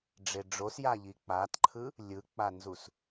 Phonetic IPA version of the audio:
ɖ͡ʐeɖ͡ʐosjaʎi k͡paːtǃʰɯ | lʲɯk͡panzus

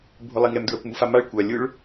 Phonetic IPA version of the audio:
bʱʊlˠiŋɛm dɹakʷmufamaɭ kʷa lʲʊɭ

